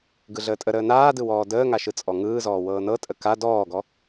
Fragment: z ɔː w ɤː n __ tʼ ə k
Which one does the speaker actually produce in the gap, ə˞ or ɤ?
ɤ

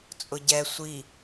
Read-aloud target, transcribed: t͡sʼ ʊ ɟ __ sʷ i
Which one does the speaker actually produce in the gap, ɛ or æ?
ɛ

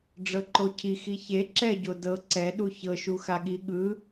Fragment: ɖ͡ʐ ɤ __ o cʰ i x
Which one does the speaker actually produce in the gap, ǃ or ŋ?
ǃ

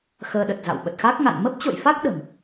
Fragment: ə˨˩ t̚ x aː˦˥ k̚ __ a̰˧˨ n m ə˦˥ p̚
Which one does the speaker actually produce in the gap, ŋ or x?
ŋ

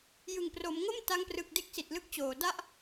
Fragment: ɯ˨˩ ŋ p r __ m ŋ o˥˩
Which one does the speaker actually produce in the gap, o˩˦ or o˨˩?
o˩˦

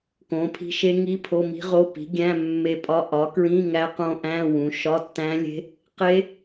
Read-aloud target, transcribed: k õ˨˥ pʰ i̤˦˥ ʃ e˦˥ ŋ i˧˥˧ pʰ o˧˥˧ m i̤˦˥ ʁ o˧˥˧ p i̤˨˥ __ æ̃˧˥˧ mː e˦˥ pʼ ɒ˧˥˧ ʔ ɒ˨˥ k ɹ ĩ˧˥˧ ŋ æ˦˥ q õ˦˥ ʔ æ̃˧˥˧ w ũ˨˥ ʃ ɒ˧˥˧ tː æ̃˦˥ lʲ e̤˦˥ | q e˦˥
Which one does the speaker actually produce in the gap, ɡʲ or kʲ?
ɡʲ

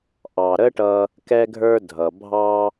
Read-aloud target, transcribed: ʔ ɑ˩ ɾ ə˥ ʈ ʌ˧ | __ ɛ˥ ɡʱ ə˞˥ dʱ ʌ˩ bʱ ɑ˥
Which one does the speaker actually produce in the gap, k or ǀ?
k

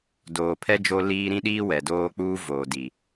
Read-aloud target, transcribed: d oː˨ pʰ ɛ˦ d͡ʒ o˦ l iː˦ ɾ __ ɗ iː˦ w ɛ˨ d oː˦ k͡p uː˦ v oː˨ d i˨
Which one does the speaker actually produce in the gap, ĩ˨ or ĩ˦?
ĩ˦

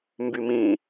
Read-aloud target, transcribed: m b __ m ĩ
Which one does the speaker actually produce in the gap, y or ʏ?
y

